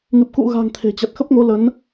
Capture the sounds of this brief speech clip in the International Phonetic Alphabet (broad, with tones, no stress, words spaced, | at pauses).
ŋɨ˨˩p̚kṵ˧˨ɣa̤˨˩ŋ t̪ʰe̤˨˩t͡ɕa˨˩t̚xə˦˥p̚ŋo˨˦ lə˨˦n